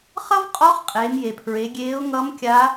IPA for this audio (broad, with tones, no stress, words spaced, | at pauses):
χʌ˥vqʼɔ˧˥χ qʼeː˩˧mje˩pʰɹe˩˧ɡʲeː˧˥ʊ̯ ŋʌ˧˥m kʲa˧˥